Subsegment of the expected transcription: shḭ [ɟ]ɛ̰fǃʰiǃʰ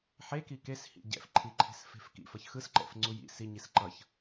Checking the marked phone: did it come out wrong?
no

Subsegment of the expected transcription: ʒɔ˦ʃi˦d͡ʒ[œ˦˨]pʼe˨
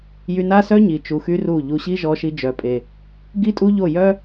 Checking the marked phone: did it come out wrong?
yes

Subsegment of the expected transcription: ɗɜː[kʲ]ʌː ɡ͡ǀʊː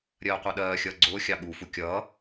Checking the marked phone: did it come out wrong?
yes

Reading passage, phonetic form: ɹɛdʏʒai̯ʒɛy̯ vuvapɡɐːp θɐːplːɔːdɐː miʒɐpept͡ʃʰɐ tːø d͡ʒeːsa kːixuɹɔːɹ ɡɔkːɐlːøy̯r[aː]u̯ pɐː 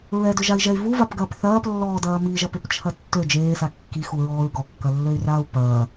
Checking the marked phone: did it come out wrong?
no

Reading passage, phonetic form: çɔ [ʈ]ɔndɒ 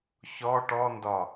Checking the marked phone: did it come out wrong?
no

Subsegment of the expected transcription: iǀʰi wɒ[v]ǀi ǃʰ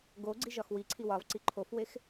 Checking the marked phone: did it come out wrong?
no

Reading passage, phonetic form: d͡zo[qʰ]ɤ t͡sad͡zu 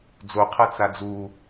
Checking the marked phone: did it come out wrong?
no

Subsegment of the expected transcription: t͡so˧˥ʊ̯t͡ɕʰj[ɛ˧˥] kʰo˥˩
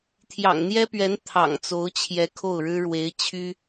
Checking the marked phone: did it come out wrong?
no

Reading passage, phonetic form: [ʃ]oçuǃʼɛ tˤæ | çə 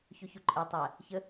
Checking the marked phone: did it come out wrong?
yes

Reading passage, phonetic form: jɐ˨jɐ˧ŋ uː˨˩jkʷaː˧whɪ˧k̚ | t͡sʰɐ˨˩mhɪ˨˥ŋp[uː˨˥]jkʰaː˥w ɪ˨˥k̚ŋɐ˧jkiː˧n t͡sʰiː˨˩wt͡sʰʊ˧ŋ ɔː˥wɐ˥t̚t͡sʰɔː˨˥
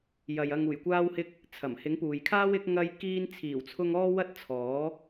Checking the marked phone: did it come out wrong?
yes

